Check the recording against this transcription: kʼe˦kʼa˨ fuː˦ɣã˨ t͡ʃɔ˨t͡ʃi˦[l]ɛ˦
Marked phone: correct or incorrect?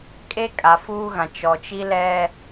correct